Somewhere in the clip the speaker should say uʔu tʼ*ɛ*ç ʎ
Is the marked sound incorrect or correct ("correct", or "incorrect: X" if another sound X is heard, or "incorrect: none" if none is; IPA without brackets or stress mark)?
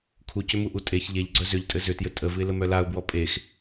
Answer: incorrect: e